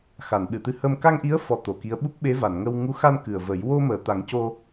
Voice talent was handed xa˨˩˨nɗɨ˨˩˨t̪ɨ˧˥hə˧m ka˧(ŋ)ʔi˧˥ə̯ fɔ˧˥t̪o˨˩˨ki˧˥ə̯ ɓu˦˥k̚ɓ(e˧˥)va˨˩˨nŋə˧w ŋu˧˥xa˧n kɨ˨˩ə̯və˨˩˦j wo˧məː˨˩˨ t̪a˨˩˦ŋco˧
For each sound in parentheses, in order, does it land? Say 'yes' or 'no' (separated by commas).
yes, yes